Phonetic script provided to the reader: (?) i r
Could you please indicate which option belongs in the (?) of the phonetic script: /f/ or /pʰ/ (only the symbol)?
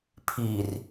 pʰ